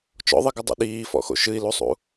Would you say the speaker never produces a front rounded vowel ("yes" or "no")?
yes